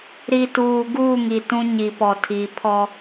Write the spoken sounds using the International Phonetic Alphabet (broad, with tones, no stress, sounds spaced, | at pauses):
ɾ i˨ t uː˨ ɡ uː˦˨ ŋ i˨ t ũ˦ ɲ i˨ p ɔ˨ tʰ i˨ pʰ ɔ˦